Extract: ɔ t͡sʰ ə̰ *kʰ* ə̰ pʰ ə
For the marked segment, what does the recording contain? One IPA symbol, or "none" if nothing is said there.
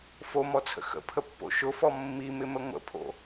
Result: x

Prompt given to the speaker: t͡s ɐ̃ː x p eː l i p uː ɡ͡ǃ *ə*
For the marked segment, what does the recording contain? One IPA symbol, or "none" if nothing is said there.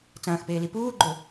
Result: ɵ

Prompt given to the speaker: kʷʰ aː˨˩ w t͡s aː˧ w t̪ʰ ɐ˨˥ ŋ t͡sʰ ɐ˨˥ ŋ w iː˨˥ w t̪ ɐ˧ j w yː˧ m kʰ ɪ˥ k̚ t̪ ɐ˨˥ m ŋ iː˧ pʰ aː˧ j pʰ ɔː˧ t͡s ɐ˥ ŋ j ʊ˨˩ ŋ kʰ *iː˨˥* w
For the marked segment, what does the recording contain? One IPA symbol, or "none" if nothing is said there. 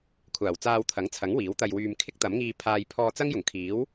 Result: iː˨˥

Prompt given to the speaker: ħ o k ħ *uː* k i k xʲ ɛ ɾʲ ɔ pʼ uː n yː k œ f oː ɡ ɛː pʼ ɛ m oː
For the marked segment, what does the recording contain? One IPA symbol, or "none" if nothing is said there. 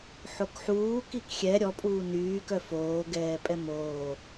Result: uː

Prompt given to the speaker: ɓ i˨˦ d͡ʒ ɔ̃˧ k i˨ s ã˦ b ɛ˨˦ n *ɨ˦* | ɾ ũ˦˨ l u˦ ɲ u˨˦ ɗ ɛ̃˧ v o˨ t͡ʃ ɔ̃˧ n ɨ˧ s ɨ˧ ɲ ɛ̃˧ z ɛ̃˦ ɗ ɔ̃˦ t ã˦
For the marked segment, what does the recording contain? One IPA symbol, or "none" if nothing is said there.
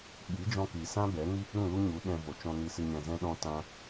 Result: i˦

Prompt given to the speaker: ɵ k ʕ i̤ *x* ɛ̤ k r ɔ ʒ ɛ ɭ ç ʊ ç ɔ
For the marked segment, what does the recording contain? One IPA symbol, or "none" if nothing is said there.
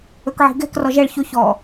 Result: ɡ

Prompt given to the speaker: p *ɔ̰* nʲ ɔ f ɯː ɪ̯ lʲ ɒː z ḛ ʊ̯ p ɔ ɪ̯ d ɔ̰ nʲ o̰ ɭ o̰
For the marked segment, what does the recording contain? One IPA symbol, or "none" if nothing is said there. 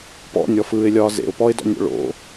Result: ɔ̰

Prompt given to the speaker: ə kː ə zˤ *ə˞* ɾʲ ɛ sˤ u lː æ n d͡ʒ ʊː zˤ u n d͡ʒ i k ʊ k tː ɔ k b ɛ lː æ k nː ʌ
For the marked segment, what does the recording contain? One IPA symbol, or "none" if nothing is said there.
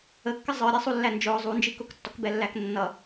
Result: ə˞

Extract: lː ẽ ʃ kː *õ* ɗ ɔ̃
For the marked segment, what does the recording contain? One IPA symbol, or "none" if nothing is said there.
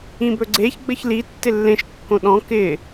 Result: õ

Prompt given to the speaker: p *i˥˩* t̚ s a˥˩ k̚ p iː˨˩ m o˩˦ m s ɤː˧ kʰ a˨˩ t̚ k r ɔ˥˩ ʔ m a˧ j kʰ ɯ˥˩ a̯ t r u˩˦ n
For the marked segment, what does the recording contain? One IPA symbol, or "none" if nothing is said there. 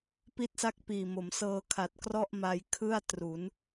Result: i˥˩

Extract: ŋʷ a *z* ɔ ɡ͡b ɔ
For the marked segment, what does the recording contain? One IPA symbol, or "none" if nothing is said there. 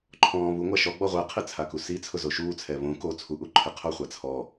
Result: ʃ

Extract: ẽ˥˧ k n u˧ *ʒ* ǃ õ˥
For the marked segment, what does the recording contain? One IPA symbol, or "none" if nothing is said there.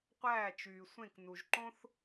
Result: ʒ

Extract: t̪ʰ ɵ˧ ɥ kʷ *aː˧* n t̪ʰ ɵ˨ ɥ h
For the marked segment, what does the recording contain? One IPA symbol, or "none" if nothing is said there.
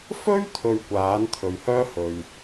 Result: aː˨˥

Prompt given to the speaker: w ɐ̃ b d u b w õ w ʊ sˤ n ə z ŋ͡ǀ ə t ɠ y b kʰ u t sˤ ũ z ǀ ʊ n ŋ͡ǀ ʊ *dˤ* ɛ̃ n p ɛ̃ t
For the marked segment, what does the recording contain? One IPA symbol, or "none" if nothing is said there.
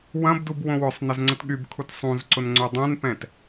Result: dˤ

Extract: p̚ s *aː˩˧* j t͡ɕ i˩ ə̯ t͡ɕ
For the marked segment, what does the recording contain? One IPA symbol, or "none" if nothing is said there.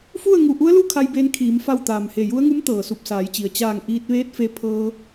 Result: aː˩˧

